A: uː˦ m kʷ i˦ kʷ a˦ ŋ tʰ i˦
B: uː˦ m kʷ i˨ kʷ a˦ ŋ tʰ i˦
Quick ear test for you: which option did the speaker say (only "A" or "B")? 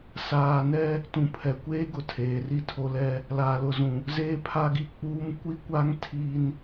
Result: A